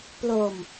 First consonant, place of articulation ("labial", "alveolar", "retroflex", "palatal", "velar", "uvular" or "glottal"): labial